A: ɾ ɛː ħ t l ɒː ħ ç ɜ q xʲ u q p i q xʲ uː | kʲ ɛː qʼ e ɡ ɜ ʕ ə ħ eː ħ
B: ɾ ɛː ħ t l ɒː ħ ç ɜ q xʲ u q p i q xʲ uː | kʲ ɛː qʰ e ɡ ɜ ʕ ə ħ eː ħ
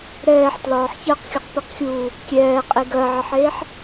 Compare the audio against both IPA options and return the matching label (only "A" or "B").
A